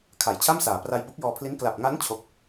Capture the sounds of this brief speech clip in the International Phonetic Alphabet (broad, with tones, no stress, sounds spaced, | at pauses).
kʰ a˩˦ j t͡ɕʰ a˥˩ m s aː˩˦ p r a˧ j b o˦˥ k̚ j ɔː˧ pʰ l i˦˥ n k l a˨˩ p̚ ŋ a˦˥ n t͡ɕʰ o˥˩ k̚